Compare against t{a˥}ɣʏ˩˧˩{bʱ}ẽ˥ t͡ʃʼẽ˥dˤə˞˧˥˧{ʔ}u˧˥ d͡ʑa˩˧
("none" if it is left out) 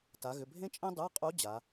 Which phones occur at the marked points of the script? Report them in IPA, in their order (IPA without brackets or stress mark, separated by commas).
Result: a˩˧, bʱ, qʼ